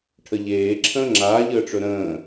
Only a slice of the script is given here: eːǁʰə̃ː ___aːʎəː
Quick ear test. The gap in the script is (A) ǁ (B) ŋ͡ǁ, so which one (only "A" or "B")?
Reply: B